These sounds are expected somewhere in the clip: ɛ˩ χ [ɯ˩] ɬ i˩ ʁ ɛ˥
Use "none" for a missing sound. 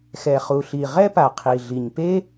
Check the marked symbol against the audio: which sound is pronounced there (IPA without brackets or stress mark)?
u˩